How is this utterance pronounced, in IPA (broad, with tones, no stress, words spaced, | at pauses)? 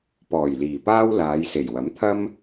pɔː˨˩jliː˨˩paː˥w laː˨˧jse˨˩jwɐ˨˥mt̪ʰɐ˥m